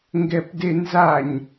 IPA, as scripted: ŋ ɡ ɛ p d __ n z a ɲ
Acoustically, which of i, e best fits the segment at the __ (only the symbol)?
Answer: e